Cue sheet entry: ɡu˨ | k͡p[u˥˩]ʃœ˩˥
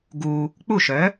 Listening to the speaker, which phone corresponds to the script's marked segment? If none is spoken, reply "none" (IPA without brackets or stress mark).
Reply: u˥˩